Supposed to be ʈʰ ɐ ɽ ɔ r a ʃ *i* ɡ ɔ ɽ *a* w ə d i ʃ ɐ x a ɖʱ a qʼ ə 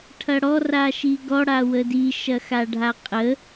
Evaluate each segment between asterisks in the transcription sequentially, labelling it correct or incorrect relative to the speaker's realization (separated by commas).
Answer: correct, correct